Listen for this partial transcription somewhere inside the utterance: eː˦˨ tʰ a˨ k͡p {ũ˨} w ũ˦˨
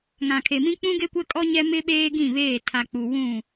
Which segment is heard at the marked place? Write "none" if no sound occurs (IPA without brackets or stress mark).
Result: u˨